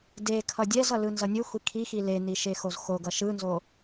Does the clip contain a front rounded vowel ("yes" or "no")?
no